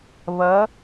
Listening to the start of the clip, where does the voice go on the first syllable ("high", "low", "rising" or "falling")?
rising